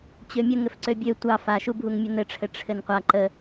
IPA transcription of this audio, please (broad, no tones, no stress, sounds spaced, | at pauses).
t͡ɕ ø mʲ ə ŋ ɘ f ǀ ø bʲ ø tʷ ɑ f a ʃ u bʱ u ŋ mʲ ə n ɘ ʈ͡ʂʰ ɘ ʈ͡ʂʰ ɘ n qʷ a ǃ ə